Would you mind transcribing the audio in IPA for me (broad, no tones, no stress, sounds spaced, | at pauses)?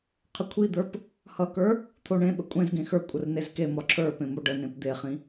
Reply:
qʰ ə kʷʰ i d̪ ə˞ p | h ʌ k ə˞ | t̪ʰ o ɳ ẽ ɓ ə kʷʼ ẽ z ɡ ẽ x ə˞ kʷʼ ə r n e z k e m ɒ ǁʰ ə˞ p ẽ m o ɖ ə n ẽ p d̪ e χ ĩ